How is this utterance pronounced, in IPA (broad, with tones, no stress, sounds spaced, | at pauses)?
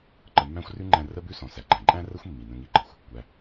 ǃ ə˧ mː æ̃˥ xʷ r ʉ˥ ŋ͡ǃ æ̃˧ r ə˥ b ʉ˥ s ɔ̃˩ s æ˩ ɡ͡ǃ æ̃˩ ǃʼ æ̃˥ r ə˥ xʷ mː i˩ n ə̃˧ ŋ i˧ ɡ͡ǃ ɤ˩ xʷ | kʷ æ˩